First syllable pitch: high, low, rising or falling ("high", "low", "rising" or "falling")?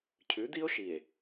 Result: rising